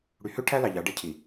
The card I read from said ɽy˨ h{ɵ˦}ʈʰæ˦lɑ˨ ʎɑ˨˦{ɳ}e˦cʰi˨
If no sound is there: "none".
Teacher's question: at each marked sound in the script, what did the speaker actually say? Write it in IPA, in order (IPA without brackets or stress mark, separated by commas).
ø˦, ɖ